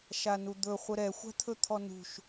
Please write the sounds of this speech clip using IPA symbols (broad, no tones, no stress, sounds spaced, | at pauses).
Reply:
ʃ a n u d̪ ɵ χʷ ə ɾ ɛ xʷ a̤ t̪ʰ ɵ t̪ʰ ɔ n ṳ ʃ